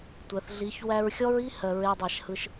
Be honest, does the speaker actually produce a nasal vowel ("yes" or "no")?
no